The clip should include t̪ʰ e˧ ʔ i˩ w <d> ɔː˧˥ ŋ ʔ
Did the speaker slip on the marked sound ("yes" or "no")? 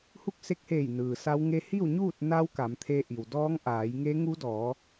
no